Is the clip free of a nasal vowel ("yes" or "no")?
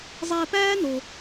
yes